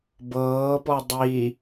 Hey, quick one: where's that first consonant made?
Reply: lips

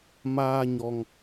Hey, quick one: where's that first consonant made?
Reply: lips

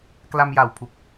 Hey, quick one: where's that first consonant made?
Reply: velum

